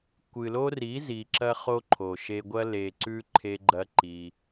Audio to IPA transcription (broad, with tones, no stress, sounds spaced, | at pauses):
kʷ ɨ˨ l o˦ r i˨˦ z i˨ ǁ ɐ˧ χ o˧ ǃʰ o˨ ʃ e˧ ɡʷ ɐ˦ l e˧ ǀ ʉ˦ ǃʰ e˦ ɡ͡ǃ ɐ˦ ǃ i˧